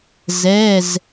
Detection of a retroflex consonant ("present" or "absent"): absent